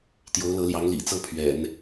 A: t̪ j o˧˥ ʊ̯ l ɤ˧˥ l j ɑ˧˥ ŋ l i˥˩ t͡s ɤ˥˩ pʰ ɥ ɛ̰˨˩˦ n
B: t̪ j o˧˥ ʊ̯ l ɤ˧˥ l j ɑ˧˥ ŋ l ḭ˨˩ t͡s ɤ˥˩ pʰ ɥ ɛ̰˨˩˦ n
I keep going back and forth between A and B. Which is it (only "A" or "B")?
B